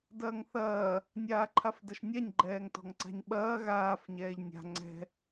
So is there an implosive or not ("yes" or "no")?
yes